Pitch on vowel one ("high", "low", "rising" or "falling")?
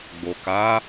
low